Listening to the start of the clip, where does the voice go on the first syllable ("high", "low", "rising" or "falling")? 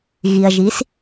low